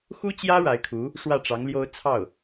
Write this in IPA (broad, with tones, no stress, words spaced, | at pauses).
xu˥t͡ɕjä˥ ɻa˧˥ɪ̯kʰu˧˥ | ʂwä˥˩ʈ͡ʂɑ˧˥ŋljo˥ʊ̯ t͡sʰɑ˥˩ʊ̯